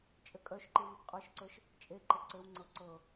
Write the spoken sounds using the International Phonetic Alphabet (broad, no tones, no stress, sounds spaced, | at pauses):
t͡ʃʼ ɘ kʼ œ ʃ ǃ i β i p qʼ ə˞ ʃ ǀ ə˞ ʃ | t͡ʃʼ e ǃ ɘ ǀ ɘ w ŋ͡ǀ ɤ ǀ ɤ